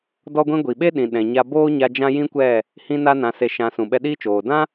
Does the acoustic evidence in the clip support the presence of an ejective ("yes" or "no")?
no